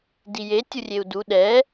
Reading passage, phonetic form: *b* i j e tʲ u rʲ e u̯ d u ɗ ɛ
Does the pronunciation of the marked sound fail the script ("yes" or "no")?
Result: yes